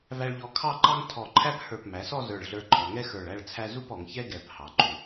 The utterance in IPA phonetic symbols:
v æ˧ ɭ ʎ ɔ˧ kʰ ɑ˥˧ ǃ ɑ˥ ŋ tʰ ɔ˧˩ ǃʰ æ˥ p h ə˞˧˩ p m æ˩˧ s ɔ˥˧ z ə˞˧˩ ɭ ɮ ə˞˧ ǃʰ ɔ˩˧ ŋ ɛ˥ x ə˞˧˩ ɭ æ˥˧ ɭ t͡sʰ æ˥ z u˥˧ p ɔ˩˧ ŋ ç ɛ˥ ɡ ɛ˧˩ p h ɑ˩˧ ǃ u˩˧

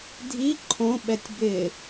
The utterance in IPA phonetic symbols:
dʱ i ǃʰ õ ɓ ɛ tʲ b ɪ

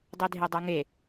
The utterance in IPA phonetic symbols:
dˤ e dʱ e dˤ o ŋ e

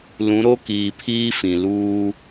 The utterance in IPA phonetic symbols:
l ũ˨˦ ɾ o˦ k iː˨ pʰ iː˦ f ĩ˨ l uː˦

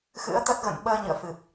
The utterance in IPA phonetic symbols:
x ɨ̰˧˥ ə̯ t̪ ə˦˥ t̚ ɣ ə̰˧˨ n ɓ əː˧ ɲ ɨ̰˧˨ ə̯ f ɨ˨˩ p̚

